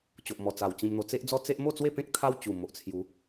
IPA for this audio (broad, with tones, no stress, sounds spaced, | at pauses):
t͡ɕ o˨ ʔ m ɔ˨˩ t͡s a˨˩ w t͡ɕ ĩ˧ m n̪ o˧ t͡s e˦ ʔ d͡z ɔ˦ t͡s e˦ ʔ m o˥˧ t͡s w e˥˧ p ẽ˦ k̚ t̪ʰ a˦ w t͡ɕ u˨˩ m o˨ ʔ t͡sʰ j u˨˦